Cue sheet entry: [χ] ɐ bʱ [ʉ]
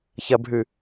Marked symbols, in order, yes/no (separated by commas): no, yes